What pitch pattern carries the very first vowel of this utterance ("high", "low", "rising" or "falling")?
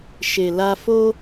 low